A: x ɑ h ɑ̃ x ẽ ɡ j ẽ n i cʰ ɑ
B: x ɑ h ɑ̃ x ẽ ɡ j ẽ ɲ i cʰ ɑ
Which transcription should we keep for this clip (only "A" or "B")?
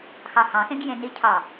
A